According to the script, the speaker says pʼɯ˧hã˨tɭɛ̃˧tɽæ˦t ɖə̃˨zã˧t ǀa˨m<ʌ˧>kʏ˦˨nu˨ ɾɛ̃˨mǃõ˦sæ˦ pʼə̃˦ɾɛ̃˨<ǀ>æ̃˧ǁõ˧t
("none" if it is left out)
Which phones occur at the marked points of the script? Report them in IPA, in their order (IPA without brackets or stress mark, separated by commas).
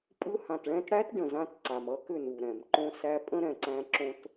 ʌ˧, ǀ